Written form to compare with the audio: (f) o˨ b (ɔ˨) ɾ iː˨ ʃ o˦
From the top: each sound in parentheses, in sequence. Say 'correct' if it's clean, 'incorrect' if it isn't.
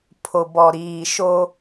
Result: incorrect: pʰ, correct

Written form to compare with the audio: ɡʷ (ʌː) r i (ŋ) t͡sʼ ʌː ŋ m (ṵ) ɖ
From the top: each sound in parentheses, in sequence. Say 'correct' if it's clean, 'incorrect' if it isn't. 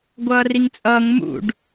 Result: correct, correct, correct

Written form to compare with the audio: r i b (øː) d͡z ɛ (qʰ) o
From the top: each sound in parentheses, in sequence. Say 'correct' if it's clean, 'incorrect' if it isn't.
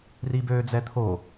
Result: correct, incorrect: t̪ʰ

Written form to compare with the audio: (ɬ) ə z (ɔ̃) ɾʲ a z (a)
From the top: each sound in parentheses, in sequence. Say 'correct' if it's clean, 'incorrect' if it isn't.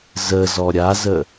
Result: incorrect: z, incorrect: ɔ, incorrect: ə

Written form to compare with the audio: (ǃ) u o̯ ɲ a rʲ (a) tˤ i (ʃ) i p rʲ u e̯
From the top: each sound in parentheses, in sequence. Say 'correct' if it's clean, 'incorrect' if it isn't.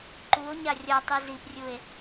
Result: correct, incorrect: ʌ, incorrect: z

